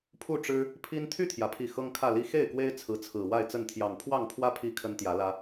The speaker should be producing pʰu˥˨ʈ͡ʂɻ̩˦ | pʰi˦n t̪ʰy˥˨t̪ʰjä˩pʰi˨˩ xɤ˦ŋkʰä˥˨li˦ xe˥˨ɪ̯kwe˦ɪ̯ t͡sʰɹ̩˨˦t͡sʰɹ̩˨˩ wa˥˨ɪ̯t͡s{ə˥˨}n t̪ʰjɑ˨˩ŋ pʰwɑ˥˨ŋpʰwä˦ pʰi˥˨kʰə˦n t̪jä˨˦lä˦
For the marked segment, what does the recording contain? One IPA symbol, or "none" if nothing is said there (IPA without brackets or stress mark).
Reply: ə˥˨